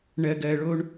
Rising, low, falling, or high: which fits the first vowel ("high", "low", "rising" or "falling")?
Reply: low